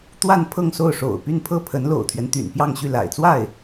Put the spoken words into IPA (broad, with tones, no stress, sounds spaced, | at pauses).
t̪ w a˥˧ n pʰ ɤ˥˧ ŋ s o˥˩ ʊ̯ ʂ o̰˨˩ ʊ̯ p y˥˧ n pʰ ɤ˥˩ pʰ ə˧˥ n l o̰˨˩ ʊ̯ t̪ʰ ɥ ɛ˦ n t̪ y̰˨˩ n p j ɑ˥˧ ŋ ɕ y˥˩ l a̰˨˩ ɪ̯ t͡s w a˥˩ ɪ̯